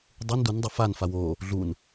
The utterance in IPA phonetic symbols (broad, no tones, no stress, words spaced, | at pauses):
dˤun dun dˤaf an fawo | ɮun